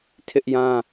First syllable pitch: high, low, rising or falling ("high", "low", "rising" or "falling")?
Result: high